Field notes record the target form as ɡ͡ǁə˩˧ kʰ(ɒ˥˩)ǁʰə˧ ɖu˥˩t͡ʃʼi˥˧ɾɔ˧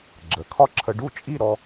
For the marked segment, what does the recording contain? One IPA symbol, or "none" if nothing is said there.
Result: ɒ˥˩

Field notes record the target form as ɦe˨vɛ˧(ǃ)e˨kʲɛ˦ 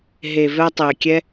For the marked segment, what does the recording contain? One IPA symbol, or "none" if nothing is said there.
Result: tˤ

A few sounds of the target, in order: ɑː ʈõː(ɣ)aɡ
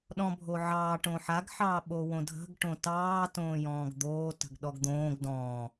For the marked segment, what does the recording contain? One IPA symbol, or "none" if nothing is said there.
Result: ħ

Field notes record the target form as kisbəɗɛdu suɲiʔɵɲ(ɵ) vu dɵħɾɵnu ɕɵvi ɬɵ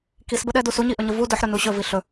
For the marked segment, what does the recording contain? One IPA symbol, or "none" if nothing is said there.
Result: ə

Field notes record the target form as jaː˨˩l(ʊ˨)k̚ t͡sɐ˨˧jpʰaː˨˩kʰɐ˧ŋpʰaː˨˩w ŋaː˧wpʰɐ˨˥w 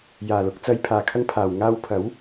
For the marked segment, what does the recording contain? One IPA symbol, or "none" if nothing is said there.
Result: ʊ˨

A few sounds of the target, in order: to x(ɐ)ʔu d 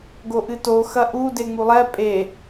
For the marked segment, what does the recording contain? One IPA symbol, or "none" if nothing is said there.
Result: ɐ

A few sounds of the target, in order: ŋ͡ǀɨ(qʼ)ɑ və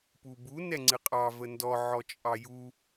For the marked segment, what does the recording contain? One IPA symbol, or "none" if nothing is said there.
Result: qʼ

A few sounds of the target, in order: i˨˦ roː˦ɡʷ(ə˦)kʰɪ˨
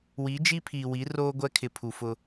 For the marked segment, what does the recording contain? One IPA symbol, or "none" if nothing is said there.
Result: ɛ˦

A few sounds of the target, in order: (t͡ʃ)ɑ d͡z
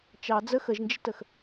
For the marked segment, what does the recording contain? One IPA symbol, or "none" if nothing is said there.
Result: t͡ʃ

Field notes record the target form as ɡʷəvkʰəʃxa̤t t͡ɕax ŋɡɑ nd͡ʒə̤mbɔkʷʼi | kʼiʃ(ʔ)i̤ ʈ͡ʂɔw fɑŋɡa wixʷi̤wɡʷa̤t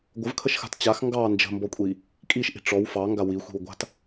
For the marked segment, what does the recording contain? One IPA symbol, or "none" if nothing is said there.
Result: ʔ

